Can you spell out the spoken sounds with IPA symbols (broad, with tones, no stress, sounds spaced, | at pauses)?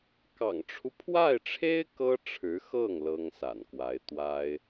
k ɑ̰˨˩ ŋ ʈ͡ʂʰ u˦ pʰ w a˥˩ ɪ̯ ʈ͡ʂʰ e˥ ɪ̯ k ɤ˥ ʈ͡ʂʰ ɻ̩˧˥ x ɤ˥˩ ŋ l ɤ˥ ŋ s a̰˨˩ n k w a˧˥ ɪ̯ t̪ w a˥ ɪ̯